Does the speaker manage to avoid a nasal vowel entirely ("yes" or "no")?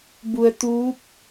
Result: yes